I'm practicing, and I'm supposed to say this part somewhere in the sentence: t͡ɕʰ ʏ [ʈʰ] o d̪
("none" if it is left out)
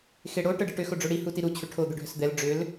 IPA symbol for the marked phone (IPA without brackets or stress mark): ʈʰ